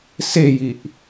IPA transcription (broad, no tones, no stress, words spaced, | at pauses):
sejiʔ